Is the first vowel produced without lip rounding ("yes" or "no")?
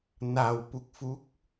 yes